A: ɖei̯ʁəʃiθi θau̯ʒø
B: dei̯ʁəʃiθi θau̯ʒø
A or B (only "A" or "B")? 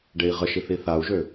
A